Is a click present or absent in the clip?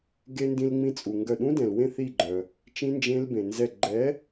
present